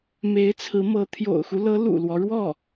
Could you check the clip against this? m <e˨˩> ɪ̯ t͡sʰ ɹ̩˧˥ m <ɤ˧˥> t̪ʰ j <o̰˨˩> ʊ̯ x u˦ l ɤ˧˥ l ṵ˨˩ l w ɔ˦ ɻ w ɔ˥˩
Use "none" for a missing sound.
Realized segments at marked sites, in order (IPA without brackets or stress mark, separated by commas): e˧˥, ɤ˧˥, o̰˨˩